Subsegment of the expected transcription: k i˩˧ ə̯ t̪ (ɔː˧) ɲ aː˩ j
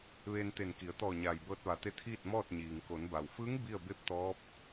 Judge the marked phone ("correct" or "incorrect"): incorrect